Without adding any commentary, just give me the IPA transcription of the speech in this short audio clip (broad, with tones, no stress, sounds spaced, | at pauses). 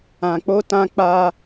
ã˨ k͡p o˧ t ã˧ k͡p a˧